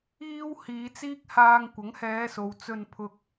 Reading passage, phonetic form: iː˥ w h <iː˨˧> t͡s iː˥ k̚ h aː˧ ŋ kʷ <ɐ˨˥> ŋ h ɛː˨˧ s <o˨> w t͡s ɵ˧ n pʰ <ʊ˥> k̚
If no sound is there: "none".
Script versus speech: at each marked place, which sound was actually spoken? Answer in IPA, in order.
iː˨˧, ɐ˨˥, o˨, ʊ˨

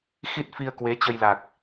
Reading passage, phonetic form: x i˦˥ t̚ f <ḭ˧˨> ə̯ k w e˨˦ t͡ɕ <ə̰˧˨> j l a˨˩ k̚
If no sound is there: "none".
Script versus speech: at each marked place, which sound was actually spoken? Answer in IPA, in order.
i˧, ə˧

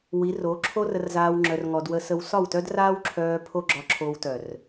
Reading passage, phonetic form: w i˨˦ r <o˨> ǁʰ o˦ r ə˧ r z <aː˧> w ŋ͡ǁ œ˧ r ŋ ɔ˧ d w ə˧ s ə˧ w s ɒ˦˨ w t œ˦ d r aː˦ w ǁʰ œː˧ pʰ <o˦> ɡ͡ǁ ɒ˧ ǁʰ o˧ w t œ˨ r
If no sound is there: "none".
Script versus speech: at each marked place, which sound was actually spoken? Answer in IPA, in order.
o˨˦, aː˧, o˦

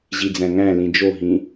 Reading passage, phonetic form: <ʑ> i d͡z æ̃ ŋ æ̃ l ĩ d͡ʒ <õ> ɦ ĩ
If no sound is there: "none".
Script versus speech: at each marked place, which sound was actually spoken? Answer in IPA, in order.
ʑ, o

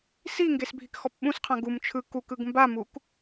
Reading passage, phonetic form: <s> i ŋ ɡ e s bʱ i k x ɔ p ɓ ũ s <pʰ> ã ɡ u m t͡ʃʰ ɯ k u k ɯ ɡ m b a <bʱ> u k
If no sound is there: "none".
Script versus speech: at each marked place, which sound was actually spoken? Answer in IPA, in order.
s, qʰ, m

